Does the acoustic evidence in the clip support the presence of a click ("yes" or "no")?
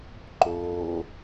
yes